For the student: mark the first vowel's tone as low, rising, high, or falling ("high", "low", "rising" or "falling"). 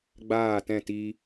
falling